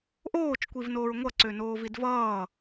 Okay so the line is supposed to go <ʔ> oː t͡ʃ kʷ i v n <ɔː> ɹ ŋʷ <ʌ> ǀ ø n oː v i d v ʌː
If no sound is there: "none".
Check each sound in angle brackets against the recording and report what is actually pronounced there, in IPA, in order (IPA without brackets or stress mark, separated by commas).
ʔ, oː, ʌ